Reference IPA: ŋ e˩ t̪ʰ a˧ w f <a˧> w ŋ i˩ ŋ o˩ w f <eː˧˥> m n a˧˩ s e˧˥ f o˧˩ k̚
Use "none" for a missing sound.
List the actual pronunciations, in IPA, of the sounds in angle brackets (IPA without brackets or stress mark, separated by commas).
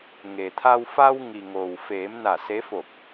a˧, eː˩˧